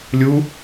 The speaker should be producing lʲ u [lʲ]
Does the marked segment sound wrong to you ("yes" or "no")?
yes